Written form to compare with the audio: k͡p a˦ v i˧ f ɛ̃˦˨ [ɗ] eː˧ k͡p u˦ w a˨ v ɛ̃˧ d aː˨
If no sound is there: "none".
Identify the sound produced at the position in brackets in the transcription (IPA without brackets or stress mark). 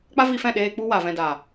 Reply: ɗ